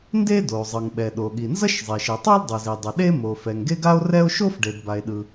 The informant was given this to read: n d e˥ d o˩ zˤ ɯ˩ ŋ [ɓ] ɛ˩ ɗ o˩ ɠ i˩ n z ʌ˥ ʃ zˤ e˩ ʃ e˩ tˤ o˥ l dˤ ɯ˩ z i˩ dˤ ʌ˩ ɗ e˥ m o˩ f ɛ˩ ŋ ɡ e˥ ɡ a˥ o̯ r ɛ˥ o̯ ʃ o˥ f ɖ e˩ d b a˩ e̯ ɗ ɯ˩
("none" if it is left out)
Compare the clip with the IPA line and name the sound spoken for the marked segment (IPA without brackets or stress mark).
ɓ